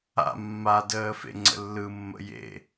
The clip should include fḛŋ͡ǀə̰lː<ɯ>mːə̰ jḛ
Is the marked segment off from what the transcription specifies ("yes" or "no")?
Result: no